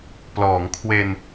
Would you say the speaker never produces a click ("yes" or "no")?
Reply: yes